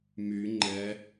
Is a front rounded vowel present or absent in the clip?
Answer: present